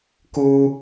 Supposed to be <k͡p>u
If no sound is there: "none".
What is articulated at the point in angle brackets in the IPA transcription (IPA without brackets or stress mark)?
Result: k